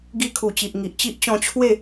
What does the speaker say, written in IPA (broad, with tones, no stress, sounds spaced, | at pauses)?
ɡ i˧ kʰ u˨˩ t͡ɕ i˨ ʔ ŋ i˨ ʔ t͡ɕ i˦ ʔ t͡ɕ ɔ̃˧ t͡ɕʰ w e˥˧